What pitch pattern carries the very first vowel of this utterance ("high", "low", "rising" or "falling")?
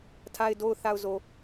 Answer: low